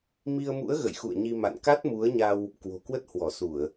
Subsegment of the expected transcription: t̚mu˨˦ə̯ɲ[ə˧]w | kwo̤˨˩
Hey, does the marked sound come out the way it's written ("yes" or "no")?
no